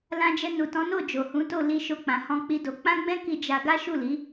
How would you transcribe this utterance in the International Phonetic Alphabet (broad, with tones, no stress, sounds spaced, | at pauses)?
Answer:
l ã˧ d͡ʒ ɛ˧ n u˨ t ɔ̃˨˦ n o˦˨ d͡ʒ o˨ h ũ˨˦ t o˦˨ l i˧ ʃ o˧ k͡p ã˨ h ɔ̃˧ k͡p i˦ d o˧ k͡p ã˦ ɡ͡b ɛ̃˦ k i˧ d͡ʒ a˧ ɡ a˦ ʃ u˦˨ l i˨˦